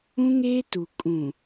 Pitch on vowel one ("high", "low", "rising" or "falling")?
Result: high